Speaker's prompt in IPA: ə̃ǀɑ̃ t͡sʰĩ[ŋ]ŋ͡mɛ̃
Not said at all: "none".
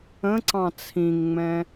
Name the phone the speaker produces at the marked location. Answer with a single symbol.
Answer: ŋ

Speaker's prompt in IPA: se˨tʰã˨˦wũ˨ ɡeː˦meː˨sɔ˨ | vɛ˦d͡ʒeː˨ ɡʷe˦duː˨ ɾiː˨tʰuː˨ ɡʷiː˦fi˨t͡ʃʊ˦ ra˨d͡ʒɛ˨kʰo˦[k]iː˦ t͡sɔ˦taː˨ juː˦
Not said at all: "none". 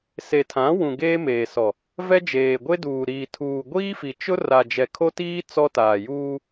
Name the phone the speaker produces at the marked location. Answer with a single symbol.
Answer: t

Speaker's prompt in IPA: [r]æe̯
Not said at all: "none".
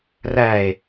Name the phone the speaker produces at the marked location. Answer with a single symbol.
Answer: r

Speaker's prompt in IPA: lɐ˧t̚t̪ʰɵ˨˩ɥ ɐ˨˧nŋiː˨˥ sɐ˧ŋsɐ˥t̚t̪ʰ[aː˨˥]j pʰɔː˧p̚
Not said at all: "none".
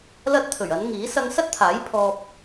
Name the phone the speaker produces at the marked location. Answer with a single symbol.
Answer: aː˨˥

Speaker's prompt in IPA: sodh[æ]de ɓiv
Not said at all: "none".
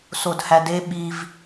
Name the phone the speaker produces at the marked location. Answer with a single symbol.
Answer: æ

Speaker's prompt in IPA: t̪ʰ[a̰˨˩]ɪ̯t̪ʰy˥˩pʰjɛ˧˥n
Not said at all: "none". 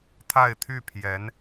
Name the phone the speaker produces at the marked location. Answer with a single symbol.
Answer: a˥˧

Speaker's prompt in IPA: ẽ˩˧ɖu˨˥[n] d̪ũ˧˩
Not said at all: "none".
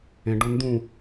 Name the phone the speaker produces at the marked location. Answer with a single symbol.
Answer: n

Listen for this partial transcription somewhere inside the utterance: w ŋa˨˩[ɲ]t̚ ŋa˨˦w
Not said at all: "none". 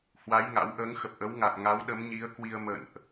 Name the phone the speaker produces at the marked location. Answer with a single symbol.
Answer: none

